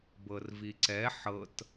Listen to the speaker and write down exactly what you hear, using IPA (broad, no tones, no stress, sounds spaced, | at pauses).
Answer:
b ɤ r v i ǀ ɛ ħ ɤ t